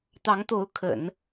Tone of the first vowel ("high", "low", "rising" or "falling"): rising